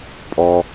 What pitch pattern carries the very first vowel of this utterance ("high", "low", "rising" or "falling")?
low